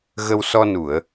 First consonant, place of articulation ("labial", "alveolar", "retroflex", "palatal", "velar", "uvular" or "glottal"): velar